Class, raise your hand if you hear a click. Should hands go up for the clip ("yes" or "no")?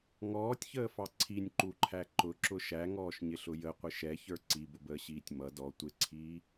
yes